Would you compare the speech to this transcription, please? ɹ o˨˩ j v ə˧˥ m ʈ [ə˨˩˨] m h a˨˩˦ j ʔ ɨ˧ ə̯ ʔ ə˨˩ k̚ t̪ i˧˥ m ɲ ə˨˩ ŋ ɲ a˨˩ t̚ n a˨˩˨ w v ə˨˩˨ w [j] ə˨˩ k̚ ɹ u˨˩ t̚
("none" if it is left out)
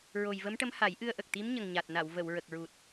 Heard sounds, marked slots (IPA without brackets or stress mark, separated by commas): ə˧˥, ɹ